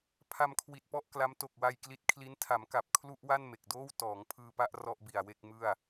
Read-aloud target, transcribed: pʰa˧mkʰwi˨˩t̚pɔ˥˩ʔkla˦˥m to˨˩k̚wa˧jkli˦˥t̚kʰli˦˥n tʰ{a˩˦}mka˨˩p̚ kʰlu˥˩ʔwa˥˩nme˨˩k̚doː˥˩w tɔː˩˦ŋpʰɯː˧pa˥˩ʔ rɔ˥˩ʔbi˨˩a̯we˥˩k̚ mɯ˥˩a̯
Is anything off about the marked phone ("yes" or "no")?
no